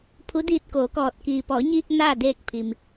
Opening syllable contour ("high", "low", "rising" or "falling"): rising